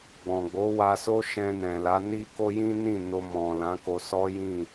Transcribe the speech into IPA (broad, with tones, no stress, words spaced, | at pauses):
ɡ͡bɔ̃˨ɡ͡bo˨˦ wa˧so˦ʃɛ̃˧ nɛ̃˨la˨˦ ni˦ko˦ jĩ˦nĩ˦˨ no˧mɔ̃˨lã˨˦ ko˧sɔ˦jĩ˦˨